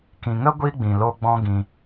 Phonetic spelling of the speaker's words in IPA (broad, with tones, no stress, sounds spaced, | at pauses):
k ĩ˨ ŋ ə˦ ɡʷ i˦ ɡ͡b ĩ˨ l o˧ ɡ͡b ɔ̃˦ ɡ ĩ˧